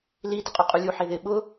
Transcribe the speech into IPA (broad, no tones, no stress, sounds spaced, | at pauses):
l i d ɪ qʼ u qʼ u lʲ u ħ e ð ɪ ɓ ʊ